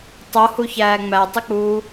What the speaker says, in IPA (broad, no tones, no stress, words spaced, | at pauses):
tˤohuçæː ŋ͡mætˤik͡puː